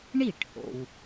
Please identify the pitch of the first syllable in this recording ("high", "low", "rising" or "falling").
falling